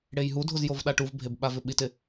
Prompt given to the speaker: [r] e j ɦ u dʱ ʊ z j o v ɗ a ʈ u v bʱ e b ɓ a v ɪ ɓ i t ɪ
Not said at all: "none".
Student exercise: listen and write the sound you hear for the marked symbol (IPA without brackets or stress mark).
ɽ